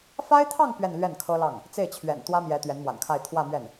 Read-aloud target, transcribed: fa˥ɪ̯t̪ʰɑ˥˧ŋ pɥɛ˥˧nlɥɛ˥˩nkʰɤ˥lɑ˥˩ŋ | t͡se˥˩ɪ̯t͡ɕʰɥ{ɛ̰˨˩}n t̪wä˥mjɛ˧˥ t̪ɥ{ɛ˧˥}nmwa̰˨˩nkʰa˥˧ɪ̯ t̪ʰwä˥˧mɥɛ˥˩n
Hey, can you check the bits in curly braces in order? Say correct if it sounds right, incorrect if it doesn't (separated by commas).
correct, correct